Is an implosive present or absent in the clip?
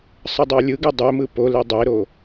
absent